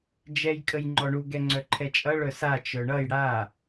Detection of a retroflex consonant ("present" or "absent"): present